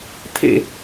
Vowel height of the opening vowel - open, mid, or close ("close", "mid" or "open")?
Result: mid